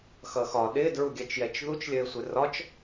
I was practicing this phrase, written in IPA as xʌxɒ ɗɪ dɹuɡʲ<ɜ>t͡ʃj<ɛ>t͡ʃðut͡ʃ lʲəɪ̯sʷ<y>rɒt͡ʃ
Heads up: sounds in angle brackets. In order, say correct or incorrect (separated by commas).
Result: correct, correct, incorrect